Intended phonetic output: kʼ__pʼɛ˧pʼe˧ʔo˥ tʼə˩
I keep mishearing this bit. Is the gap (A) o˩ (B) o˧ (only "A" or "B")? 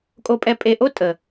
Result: B